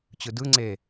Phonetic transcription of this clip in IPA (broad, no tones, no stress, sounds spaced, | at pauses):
t͡ɕ ɯ d ɯ ŋ͡ǀ e